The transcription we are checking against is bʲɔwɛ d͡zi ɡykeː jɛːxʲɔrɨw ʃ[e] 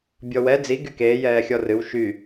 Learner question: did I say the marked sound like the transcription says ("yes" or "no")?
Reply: no